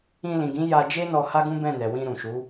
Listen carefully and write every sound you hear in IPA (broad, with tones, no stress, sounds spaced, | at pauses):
ĩ˧ l ĩ˨ ɡ ĩ˨˦ j a˦ d͡ʒ e˦ n ɔ˧ h a˦ ɡ ũ˦ b ɛ̃˦˨ n ɛ˨ w ĩ˧ ɾ ũ˨ ʃ u˨˦